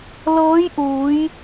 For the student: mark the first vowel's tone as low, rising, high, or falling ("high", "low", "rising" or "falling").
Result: rising